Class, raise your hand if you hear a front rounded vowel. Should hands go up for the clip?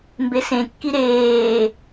no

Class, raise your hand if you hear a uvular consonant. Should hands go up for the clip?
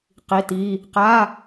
yes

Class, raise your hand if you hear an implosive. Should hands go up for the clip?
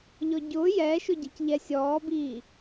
no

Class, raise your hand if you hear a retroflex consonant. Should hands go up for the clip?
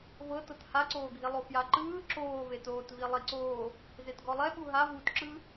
no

